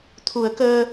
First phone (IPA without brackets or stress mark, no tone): t̪ʰ